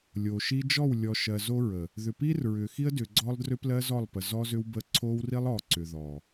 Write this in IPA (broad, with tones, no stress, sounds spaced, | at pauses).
lʲ o˨ ʃ i˦ d͡ʒ ɔ˦˨ w lʲ ɔ˨ ʃ ɜ˨ z o˦ ɹ ə˨ | ð ʏ˨ p i˦ r ɹ ʏ˨ x i˦ ə̯ d ʏ˨ ɡ͡ǀ ɔ˦ lˠ d r ʏ˦ p l ɜ˦ z ɔ˦˨ lˠ p ə˨ z ɔ˦ z ʏ˦ w b ə˦ ǀʰ o˦ w r i˦ lˠ ɔ˨ ǀ ʏ˨ ð ɔ˨